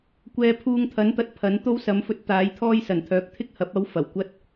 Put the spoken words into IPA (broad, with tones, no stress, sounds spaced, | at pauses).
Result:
kʷ ɛː˧ pʰ uː˧ ŋ t̪ʰ ɐ˨˥ n t̪ ɐ˧ t̚ pʰ ɐ˨˥ n t̪ o˥ w s ɐ˨˧ m f ɵ˧ t̚ t̪ aː˨˥ j t̪ʰ ɔː˥ j s ɐ˨˩ n t̪ʰ œː˨˥ k̚ t̪ʰ ɪ˥ k̚ h ɐ˨˥ p̚ ɐ˨˥ w f ɐ˨˩ w kʷ ɐ˥ t̚